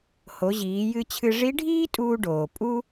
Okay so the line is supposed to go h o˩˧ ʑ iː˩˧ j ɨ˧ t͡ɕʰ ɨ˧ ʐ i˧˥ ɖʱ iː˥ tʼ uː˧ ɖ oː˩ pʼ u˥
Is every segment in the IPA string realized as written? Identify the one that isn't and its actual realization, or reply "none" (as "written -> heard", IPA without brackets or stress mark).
none